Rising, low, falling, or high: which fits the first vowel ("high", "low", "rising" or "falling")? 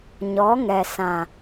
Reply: rising